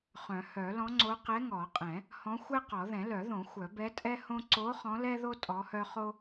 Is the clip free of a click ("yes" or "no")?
no